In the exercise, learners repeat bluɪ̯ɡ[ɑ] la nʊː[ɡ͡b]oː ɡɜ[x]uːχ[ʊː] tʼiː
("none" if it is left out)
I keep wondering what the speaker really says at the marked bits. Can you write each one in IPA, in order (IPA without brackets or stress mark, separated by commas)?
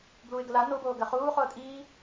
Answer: ə, b, χ, ʊː